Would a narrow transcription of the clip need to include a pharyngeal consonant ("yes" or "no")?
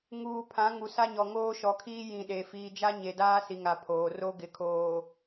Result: no